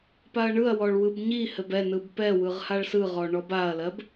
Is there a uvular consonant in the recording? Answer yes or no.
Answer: yes